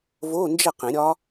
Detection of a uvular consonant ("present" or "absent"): present